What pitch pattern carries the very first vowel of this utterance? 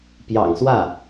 low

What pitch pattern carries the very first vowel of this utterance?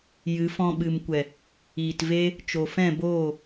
rising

